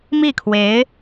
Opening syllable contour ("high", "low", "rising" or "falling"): falling